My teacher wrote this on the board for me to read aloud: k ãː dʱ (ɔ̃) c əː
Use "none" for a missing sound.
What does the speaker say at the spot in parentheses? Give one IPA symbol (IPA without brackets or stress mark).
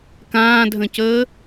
ə̃